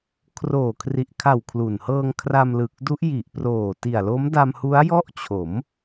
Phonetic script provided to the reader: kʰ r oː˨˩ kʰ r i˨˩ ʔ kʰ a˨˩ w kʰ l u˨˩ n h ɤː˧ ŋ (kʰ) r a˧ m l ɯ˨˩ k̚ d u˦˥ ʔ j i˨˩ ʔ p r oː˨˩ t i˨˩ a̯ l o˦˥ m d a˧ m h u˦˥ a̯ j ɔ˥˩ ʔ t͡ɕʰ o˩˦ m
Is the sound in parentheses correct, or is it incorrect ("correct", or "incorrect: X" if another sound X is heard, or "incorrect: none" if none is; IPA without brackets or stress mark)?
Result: correct